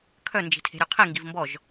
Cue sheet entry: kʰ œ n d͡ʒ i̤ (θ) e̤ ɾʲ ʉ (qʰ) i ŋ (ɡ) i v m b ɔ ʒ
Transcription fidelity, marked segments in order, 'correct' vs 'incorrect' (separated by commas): incorrect, correct, correct